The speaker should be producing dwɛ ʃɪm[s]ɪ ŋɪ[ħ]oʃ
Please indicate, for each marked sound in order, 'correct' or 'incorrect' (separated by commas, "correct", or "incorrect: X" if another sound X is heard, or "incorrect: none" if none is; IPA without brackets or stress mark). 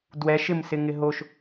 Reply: correct, incorrect: ɦ